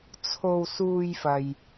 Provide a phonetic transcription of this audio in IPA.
t͡sʰ o˧ w s uː˧ j f ɐ˨ j

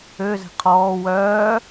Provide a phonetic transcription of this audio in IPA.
ø z ɛ̤ qʰ ɔː w œː

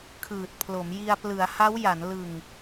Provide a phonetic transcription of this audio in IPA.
kʰ ɯː˨˩ t̚ pʰ l o˩˦ m j i˧ a̯ p l ɯ˩˦ a̯ h a˦˥ w j a˩˦ n l ɯ˨˩ ŋ

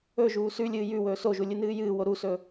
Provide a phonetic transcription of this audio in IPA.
ɵ ʒ uː s ʉ lʲ ɨː j ʉ w ɵː s o ʒ u lʲ ɨ n ɨː j ɨː w o ɾ u s ɵ

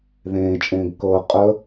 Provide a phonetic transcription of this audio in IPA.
ð ẽː t͡ʃʼ ẽː ɡ k ɤ qʼ ə

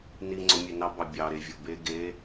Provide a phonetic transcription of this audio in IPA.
n i ŋ͡ǀ o mʲ e n ɑ b ɑ bʲ ɑ ɾ e vʲ o b e ɡ e

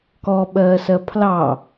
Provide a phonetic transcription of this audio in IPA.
k ɔ ɓ ɜː s ɜ pʰ l ɑ

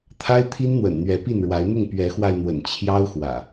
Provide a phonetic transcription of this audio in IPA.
t̪ʰ a˦ ɪ̯ t̪ʰ i˦ n n̪ w ə̰˨˩ n n̪ ɥ ɛ˨˦ p i˥˨ n ɻ w a˨˦ ɪ̯ n̪ ʊ˥˨ ŋ p ɥ ɛ˨˦ x w a˧ ɪ̯ n̪ w ə̰˨˩ n t͡ɕʰ j ɑ˦ ʊ̯ x w ä̰˨˩

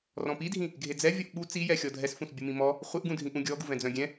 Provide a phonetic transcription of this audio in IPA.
r ɔ̃ p i dʱ ĩ | ɡʱ e d͡z ɛ vʲ ɔ ʔ ɓ u t͡s i j ɛ xʲ ɔ dʱ ɛ s f ũ s bʲ u m ĩ m ɔ | χʷ e ʔ ɡ ũ dʱ ĩ ʔ ũ ɡʲ ɔ ɡ u v ɛ̃ d͡z œ̃ ɡʲ ɛ̃

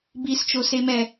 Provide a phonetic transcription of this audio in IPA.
b i s t͡ʃ o s e m ɛ

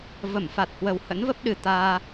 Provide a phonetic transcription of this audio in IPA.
v ə˧˩ m f a˨˩ t̚ h w ə˨˩ w h ə̰˧˥ n v ə˦˥ p̚ ɗ ɨ˨˩ t̪ aː˧

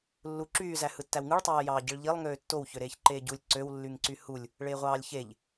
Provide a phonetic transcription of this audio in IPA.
lː u ǁ yː z æ h ɯ tː æ w ŋ ɯ ɭ tˤ ɑː j ɑː ɟ i ɭ ʎ i lˠ ŋ øː tː o w ç ø ɾ eː ç ǃ eː ɟ u lʲ ǀ ø w lː y ŋ ǀ y h u lʲ | ɭ eː ʁʷ ɑː lʲ ç e ʎ

